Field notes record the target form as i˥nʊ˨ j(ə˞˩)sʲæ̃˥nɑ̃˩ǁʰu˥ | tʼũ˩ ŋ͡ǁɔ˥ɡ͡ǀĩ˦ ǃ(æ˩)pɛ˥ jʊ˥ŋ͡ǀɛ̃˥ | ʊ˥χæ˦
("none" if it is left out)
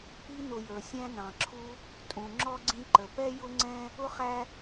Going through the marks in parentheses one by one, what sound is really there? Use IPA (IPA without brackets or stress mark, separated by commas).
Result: ə˞˩, ə˩